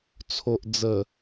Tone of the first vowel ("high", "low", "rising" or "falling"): low